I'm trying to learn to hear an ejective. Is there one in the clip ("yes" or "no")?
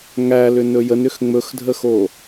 no